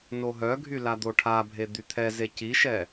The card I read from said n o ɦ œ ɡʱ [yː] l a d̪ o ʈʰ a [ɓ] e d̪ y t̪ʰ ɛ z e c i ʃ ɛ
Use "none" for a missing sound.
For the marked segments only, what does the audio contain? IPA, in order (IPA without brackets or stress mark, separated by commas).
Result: y, bʱ